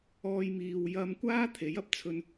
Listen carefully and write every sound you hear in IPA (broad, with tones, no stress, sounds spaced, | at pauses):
ɔː˥ j m iː˧ w j ɐ˧ m kʷ aː˥ t̪ʰ e˨˥ j ɐ˧ p̚ t͡sʰ ɵ˧ n